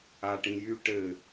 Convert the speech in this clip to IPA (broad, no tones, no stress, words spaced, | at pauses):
aʈĩjy ʈɘ